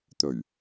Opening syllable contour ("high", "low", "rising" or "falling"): low